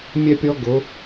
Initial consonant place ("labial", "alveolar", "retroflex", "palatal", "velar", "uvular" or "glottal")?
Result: labial